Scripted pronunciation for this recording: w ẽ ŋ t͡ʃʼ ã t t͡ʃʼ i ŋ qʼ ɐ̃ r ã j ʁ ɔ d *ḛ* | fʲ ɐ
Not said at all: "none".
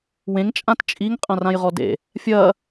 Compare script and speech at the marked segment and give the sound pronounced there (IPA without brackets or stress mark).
ḛ